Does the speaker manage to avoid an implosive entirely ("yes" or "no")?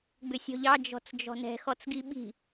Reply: no